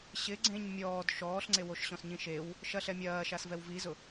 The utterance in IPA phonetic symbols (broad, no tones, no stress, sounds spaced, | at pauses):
ɕ ɪ ɡ͡ǀ ẽ ɲ mʲ ɔː d ʃ ɔː ɬ ŋ͡ǀ e w o ʃ ɕ ɔ̃ s ɲ ĩ ʃ e w | ʃ ɐ ɬ ɛ mʲ ɐː ʃ a s v ɛ w v i z ʊ